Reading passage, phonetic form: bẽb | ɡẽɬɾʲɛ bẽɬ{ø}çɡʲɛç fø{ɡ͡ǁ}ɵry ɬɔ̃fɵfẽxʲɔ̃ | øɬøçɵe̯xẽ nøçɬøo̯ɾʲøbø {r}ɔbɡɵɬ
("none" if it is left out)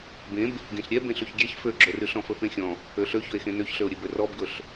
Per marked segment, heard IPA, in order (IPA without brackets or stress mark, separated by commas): ø, ɡ͡ǁ, r